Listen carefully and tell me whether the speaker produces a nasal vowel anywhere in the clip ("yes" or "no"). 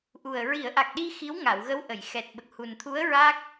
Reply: no